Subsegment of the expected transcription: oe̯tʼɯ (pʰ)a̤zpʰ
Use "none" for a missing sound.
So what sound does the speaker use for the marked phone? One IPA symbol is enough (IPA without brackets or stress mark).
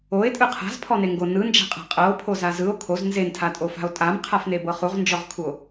qʰ